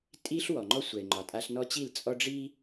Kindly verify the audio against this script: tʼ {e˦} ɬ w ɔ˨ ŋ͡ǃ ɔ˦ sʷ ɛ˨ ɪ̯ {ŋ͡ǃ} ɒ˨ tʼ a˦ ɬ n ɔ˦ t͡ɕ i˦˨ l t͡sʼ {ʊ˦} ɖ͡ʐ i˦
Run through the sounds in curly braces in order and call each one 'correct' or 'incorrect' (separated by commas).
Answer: incorrect, correct, incorrect